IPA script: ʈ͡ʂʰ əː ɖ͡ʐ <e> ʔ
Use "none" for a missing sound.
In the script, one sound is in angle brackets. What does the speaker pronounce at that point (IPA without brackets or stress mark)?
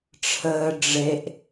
e